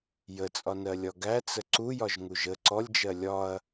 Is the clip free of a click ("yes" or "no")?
no